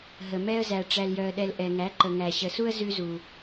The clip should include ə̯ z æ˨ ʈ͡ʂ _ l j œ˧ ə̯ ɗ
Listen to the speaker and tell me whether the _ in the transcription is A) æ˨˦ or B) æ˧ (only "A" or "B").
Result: B